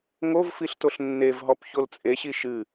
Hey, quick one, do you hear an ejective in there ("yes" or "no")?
yes